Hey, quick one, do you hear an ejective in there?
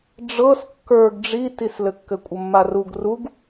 yes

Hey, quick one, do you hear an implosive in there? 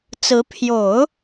no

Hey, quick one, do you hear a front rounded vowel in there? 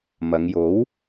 no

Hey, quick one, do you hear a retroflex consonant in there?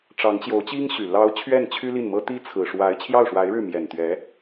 yes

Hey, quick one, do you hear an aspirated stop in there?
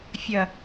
no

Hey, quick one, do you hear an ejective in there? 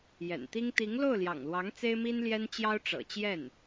no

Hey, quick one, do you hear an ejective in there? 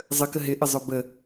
no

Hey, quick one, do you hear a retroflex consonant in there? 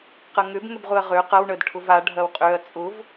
yes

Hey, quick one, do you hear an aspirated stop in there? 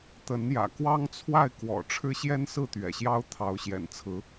yes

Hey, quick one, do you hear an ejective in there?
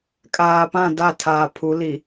yes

